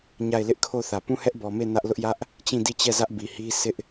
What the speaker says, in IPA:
ɲ a˦˨ ɪ̯ l ɪ˦ ʔ kʰ o˦˨ θ ä˨ p ũ˦˨ h ɛ˦ ʔ b ɔ˨ m e˦˨ n ä˦ ʔ l ʊ˦ ʔ j ä˦ ʔ | t͡ɕ ĩ˦˨ d i˦˨ t͡ɕ ɛ˦˨ z ä˦ ʔ b i˨ h i˦ s ɪ˦ ʔ

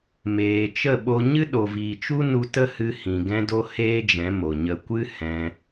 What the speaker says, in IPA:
m eː˨ t͡ʃ ə˦˨ ɓ o˧ ɲ ɨ˦ ɗ o˨ v iː˨ t͡ʃ u˦ n u˧ t ə˦ h ɨ˧ h ĩ˨ ɡ ɛ̃˦ d o˦ h eː˦ d͡ʒ ɛ̃˨˦ m o˨ ɲ ə˧ kʷ ɨ˦ h ɛ̃˧

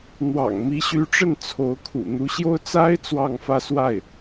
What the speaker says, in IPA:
n̪ w ɑ̰˨˩ ŋ m i˧˥ ɕ y˧˥ ʈ͡ʂ ə˥˩ n t͡sʰ o˧˥ ʊ̯ kʰ ṵ˨˩ n̪ u˧˥ ɕ j o˥ ʊ̯ t͡s a˥ ɪ̯ t͡s w ɑ˥˧ ŋ f ä˥˧ s w a˥˩ ɪ̯

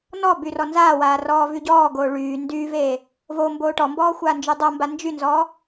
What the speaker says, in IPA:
n ɔ b y r ɔ n z aː w aː r ɔː v y ɟ ɔː ɡ oː ɭ yː n d yː v eː | v o m b oː ʈ ɔ m b ɔː xʷ aː n d͡ʒ y dˤ o m b a n d͡ʒ y n z ɔː

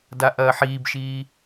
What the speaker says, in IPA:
d a ʔ ɐː ħ iː b ʃ iː

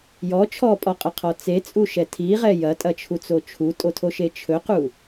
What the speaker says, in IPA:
j ɔ t͡ʃʰ ɔ pʼ ɔ qʼ ɐ qʰ ɔ t͡s e t͡sʼ u ʃ ɛ tʰ i ʁ ɛ j ɐ tʼ ɐ t͡ʃʰ u t͡s o t͡ʃʰ u tʼ o tʰ o ʃ e t͡ʃʰ ɵ q u

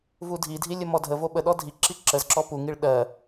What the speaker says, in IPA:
v u dʱ i dʱ i lʲ ə m ɔ dʱ ə v o ɓ ə ɗ ɔ dʱ i ǁ i ǁ ə z ǁ ɔ p u ŋ i ɭ ɗ ɜ

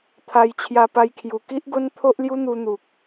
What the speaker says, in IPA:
t̪ʰ a˧ j t͡ɕʰ j a˧ p a˧ j kʰ j u˨˩ k i˦ ʔ ɡ o˦ n t̪ʰ o˦ ʔ l j u˦ n̪ u˧ n̪ u˨ k̚

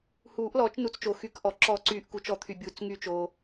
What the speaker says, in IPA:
h uː˨˩˦ ʔ l ɔː˨˩˦ t͡ʃ n u˨˩˦ t͡s t͡ʃ oː˩ x y˨˩˦ k ʔ ɔ˩ ǁ ɔ˨˩˦ ǀ yː˨˩˦ ʔ k u˩ t͡ʃ ɔ˨˩˦ t̪ʰ y˩ bʲ uː˩ t͡s ŋ y˨˩˦ t͡ʃ o˩

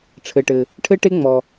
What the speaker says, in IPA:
ʈ͡ʂʰ ɘ˩ ʈ ɘ˩ | ʈʰ ɘ˥ ʈ e˥ ŋ͡m ɔ˩

